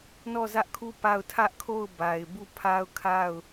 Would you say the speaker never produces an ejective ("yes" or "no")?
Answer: yes